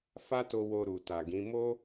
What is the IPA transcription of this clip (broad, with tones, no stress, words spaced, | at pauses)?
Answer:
fa˦to˧ wo˧ ɾu˨ta˨ɡĩ˨˦ mo˦